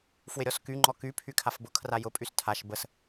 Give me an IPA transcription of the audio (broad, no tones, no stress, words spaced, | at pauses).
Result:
fwɪɾʲɔsky ŋ͡ǃɔky pʰykʰafbʊ kʰrajʊ pʼystʰaʃ bəs